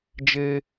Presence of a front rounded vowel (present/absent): absent